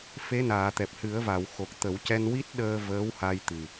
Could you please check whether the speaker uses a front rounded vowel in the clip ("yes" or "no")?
no